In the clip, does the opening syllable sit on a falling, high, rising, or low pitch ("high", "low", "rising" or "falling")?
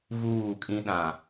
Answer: falling